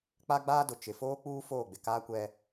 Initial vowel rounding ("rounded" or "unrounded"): unrounded